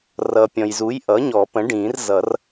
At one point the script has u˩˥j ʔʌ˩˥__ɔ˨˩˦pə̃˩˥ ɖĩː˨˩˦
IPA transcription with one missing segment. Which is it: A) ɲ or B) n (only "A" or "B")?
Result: A